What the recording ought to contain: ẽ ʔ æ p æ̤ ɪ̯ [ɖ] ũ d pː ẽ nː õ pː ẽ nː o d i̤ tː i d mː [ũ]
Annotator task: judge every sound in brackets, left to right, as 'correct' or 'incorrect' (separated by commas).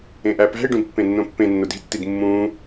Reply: correct, incorrect